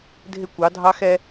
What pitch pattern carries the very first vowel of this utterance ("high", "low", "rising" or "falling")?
high